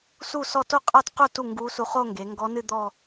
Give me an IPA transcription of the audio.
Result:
s u˥˩ s ɔ˥˩ t o˥˩ qʼ a˥˩ t q u˥˩ t u˥˩ ŋ ɡ u˧˥ s u˧ χ o˥˧ ŋ ɡ e˩˧ ŋ ɡ ɔ˧˥ n ɨ˥˧ d̪ ɔ˥˧

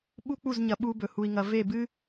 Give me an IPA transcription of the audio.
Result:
ɓ u˦ k͡p u˦˨ z ɲ ɐ˨ ɓ u˦ b ɵ˨ h u˨ i̯ ŋ ɐ˨ v e˦˨ b ɨ˦

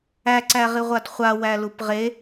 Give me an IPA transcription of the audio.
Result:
æ ǀ æ ʁ i ʁʷ a d χʷ a w æ l u p ʁ e

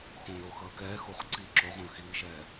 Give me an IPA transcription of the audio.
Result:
x õː l o x ʌː k ɛː x u χ ǀ iː ǁ o ʁ õ l x iː ʃ ɛː

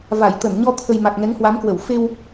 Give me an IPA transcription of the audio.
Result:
v a˧˩ j t̪ ə˧˩ n ɲ ɔ˧ t̪ʰ ə˨˩ j m a˨˩ k̚ ŋ ɛ˨˦ ŋ h w a˨˦ m k w ə˧˩ w f e˧ w

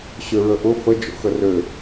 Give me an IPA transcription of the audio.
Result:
ɕ ø ɹ ə ʔ ʊ f ə d͡ʒ o̰ x ə r ø

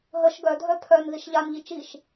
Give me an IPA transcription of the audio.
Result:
ɦ ə ʃ ɡ œ dʱ œ pʰ œ n ð i ʃ ʎ a n ʎ i t͡ʃ i ʃ

